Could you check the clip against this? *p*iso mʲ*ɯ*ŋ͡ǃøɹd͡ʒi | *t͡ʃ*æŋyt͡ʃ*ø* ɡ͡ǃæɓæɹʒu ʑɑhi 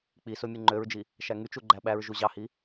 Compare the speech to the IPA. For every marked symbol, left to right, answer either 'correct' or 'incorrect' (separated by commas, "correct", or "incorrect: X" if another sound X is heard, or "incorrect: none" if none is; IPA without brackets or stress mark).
incorrect: k͡p, correct, incorrect: ʃ, incorrect: u